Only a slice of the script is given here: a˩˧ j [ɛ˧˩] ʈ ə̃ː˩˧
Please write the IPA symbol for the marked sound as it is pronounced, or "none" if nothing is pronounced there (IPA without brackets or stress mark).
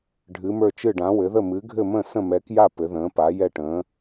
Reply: ɛ˧˩